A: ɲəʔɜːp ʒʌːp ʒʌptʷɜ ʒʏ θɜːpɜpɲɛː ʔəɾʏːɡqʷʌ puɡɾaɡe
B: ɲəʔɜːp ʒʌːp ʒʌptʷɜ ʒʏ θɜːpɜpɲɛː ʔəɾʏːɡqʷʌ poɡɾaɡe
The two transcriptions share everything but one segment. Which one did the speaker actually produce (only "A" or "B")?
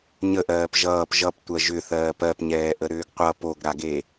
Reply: B